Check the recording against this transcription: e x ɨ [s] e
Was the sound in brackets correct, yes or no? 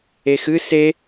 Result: yes